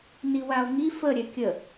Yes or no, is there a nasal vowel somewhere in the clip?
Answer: no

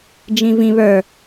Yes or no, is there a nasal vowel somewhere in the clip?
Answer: yes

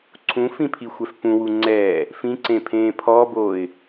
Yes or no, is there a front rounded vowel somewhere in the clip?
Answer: no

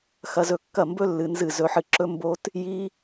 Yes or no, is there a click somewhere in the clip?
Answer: yes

